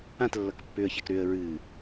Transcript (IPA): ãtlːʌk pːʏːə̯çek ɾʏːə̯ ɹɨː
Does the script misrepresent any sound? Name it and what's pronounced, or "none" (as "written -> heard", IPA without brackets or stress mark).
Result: none